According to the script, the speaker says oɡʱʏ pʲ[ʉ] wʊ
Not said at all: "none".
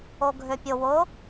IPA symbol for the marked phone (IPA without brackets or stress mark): ʊ